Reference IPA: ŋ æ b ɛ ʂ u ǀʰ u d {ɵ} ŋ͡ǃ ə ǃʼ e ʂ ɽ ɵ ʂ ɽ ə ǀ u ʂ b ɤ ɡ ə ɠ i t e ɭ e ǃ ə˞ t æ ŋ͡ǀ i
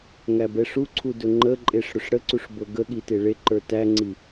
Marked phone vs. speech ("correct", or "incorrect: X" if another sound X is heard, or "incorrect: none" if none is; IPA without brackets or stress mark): correct